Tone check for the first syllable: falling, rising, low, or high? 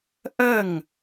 falling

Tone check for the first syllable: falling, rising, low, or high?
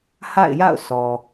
falling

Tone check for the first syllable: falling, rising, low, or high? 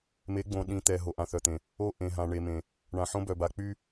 rising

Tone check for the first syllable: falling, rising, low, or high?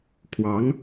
rising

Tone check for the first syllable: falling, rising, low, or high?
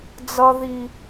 high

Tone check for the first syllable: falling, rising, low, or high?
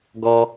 high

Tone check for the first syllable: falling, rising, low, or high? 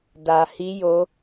low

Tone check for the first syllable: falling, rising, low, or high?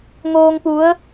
low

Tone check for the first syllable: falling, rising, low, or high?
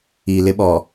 low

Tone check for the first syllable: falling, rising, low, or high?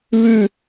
falling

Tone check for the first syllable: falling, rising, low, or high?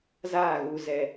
falling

